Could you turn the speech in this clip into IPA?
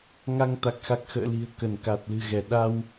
ŋ a˧ ŋ t̪ a˨˩ k̚ x a˨˩ k̚ x ə̰ː˧˨ l i̤˨˩ ə̯ k ə˧˩ n k a˨˩ t̚ l ɨ̤˨˩ ɣ ɛ˧˩ ɗ a˧ w

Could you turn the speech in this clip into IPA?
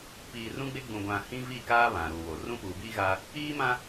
p iː˨ r ũ˦ ɡ͡b e˦ ɡ͡b ũ˨ ɡʷ ã˨ h ĩ˦ v i˦˨ k aː˦ β ã˨ ɾ uː˨ w o˨ r ũ˦ p uː˨ b iː˦ ɣ a˦ | iː˦ m ã˦

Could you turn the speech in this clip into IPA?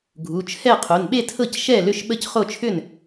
ɡʱ u˩˧˩ t͡ʃʰ ɛ˥˩ qʰ o˩˧˩ n ɓ e˥˩ tʰ ɤ˥˩ c ʃ ɛ˥˩ l ʏ˥˩ ʃ ɓ ə˥˩ c χ o˥˩ t͡ʃʰ ʏ˥˩ n

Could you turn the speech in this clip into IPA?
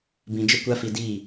b ĩ˧ d͡ʒ ə˦ kʷ a˦ f i˧ d iː˦˨

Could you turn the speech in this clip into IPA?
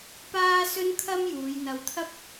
p aː˥ s ɵ˥ n kʰ ɐ˥ m j uː˨˧ j n̪ ɐ˨ w t̪ʰ ɐ˥ p̚

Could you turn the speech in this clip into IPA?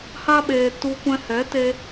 h a˦ ɓ eː˧ t u˧ kʷ ɛ̃˧ h ɛ˨˦ t e˧

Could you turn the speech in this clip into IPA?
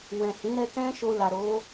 w ɛ̃˨ h ĩ˨˦ ɾ ɛ˧ k ɛ̃˦ ʃ o˧ l a˨ ɾ o˨˦

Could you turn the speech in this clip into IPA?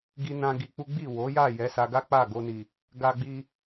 ɡ i˧ n ã˧ ɡ i˧ k͡p u˦ ɡ͡b i˦˨ w o˨˦ j a˦˨ j ɛ˨˦ s a˧ ɡ a˦ k͡p a˦˨ ɡ o˧ n i˨ | ɡ a˧ ɡ͡b i˧

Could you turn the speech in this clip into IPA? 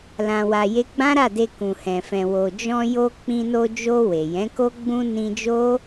l ã˧ w a˧ j e˦ ɡ͡b ã˦ ɾ a˦˨ d e˧ k ũ˨ h ɛ̃˨ f ɛ̃˨ w o˨ d͡ʒ ɔ̃˧ j o˧ k͡p ĩ˧ n o˧ d͡ʒ o˧ w e˨ j ɛ̃˨˦ k o˦ ɡ͡b ũ˧ n ĩ˧ d͡ʒ o˦

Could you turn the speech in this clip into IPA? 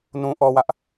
n ũ˨ ʔ ɔ˨ w ä˦ ʔ

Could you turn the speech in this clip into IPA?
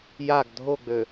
j a ɡ dʱ o ɡ͡b ø

